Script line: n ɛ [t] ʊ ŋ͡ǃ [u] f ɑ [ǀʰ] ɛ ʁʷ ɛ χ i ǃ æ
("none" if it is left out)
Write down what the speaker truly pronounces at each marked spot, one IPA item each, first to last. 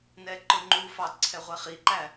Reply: ǃ, u, ǀʰ

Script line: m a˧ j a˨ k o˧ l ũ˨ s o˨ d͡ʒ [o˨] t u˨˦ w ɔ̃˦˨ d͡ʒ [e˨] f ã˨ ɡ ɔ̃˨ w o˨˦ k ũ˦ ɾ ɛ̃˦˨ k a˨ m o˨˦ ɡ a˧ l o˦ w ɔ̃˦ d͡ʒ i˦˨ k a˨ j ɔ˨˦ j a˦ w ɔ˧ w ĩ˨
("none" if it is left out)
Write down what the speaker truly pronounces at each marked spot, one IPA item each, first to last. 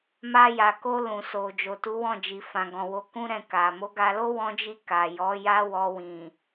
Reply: o˨, i˨

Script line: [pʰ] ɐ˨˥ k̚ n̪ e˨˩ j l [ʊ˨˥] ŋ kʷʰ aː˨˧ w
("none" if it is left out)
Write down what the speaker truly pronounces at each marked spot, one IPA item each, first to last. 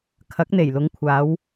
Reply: kʰ, ʊ˨˧

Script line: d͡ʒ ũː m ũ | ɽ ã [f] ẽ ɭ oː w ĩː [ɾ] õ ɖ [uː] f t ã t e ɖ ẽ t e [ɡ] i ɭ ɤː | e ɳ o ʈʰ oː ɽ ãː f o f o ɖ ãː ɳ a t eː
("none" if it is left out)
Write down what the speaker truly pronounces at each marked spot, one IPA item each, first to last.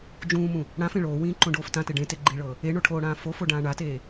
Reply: f, ǃ, oː, ɡ͡ǃ

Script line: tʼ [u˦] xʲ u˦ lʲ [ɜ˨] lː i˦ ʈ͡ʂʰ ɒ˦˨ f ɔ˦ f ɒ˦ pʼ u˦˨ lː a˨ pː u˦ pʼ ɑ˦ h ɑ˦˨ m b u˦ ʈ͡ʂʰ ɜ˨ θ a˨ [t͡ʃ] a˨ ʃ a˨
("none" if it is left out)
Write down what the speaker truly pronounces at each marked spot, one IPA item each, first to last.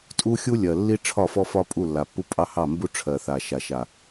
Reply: u˦, ɜ˨, ʃ

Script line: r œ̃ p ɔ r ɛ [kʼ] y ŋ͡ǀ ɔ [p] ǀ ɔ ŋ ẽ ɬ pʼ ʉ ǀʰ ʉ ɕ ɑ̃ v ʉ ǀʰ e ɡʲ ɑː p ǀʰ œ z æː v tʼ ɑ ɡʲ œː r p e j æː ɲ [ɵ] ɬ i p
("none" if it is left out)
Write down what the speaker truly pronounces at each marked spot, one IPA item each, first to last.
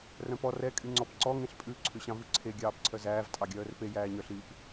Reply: kʼ, p, œ

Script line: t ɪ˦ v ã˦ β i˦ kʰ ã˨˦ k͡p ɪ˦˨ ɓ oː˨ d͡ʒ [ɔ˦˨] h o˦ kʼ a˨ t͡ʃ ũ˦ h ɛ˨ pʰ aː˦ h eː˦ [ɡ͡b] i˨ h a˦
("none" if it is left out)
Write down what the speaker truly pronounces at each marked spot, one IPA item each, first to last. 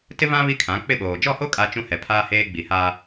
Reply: ɔ˦˨, ɡ͡b

